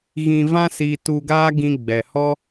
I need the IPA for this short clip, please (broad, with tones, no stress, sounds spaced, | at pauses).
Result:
ɣ ĩ˧ v ã˦ s iː˧ t u˧ ɡ aː˦ ɡ ĩ˧ ɡ͡b ɛ˨ h ɔ˦